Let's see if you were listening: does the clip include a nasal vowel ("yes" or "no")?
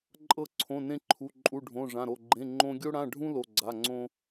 yes